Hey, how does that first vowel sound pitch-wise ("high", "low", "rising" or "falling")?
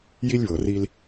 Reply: high